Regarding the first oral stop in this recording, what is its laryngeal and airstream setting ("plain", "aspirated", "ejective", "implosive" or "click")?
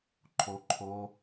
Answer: click